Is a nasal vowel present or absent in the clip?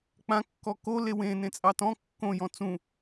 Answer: present